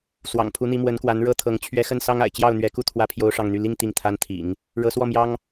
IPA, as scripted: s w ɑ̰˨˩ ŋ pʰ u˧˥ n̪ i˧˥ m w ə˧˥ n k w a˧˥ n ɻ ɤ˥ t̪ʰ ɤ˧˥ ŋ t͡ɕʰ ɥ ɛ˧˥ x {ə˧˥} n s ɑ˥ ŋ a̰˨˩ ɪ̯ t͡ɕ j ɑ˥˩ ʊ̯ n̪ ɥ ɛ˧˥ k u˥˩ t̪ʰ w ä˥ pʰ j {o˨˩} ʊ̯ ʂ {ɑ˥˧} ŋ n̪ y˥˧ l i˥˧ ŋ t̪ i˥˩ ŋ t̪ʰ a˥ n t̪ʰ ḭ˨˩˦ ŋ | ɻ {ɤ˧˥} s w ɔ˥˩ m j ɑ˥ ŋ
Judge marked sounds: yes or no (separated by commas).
no, no, yes, yes